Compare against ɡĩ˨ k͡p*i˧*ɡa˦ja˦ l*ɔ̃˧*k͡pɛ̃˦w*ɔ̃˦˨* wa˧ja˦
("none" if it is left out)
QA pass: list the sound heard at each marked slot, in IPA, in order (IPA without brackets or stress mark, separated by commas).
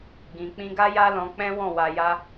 ĩ˧, ɔ̃˧, ɔ̃˦˨